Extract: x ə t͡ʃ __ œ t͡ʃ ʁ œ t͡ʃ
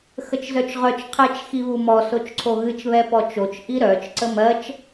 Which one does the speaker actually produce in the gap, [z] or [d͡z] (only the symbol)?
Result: z